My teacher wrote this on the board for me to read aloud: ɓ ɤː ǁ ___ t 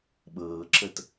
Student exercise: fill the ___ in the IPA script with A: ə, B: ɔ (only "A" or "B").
A